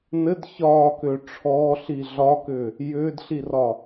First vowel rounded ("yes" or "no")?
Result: no